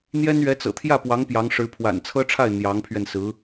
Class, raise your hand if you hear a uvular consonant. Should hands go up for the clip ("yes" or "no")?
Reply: no